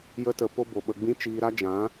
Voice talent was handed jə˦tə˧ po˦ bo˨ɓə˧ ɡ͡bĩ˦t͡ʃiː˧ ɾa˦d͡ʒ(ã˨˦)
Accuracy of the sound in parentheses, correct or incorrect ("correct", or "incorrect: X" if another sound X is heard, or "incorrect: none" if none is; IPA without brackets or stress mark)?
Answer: correct